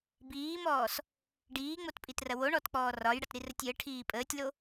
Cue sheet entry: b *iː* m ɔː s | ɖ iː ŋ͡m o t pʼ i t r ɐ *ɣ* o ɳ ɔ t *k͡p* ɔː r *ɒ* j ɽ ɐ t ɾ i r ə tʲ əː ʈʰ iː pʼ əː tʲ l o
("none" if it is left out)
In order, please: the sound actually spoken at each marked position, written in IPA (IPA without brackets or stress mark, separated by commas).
iː, w, k͡p, ɒ